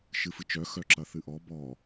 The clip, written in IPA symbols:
ʃɨfɨt͡ʃœ xœǁɐθɨʔɔ bɔ

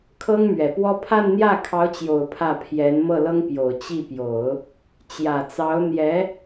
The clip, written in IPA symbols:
kʰɤ˥ŋmɥɛ˨˩pwɔ˥ pʰa˥˧nn̪jä˥˩kʰɑ˧˥ʊ̯t͡ɕjo˨˩ʊ̯ pʰä˥˩ pʰjɛ˧˥n mɤ˥˩lɤ˥ŋpjo˨˩ʊ̯ t͡ɕi˥˩pjo˨˩˦ʊ̯ | t͡ɕjä˨˩t͡sɑ˧˥ʊ̯n̪jɛ˧˥

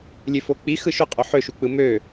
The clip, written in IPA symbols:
lʲøfok͡pi xɯʃoqʼo ħøʃuk͡pɯ mø

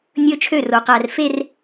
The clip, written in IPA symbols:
nʲɵː˦t͡ʃʰø˦˨ro˨ qæ˨r fe˦r

